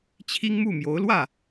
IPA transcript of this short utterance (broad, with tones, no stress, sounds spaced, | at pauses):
t͡ɕʰ i˥ ŋ m u˥˩ m j o˧˥ ʊ̯ l w ä˥˩